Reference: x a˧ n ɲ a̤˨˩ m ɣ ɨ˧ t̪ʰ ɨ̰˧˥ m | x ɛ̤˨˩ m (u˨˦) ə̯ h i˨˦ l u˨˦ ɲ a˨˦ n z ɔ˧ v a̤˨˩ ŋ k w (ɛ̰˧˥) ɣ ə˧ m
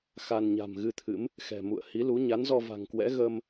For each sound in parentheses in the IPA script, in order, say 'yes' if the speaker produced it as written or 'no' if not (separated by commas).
no, yes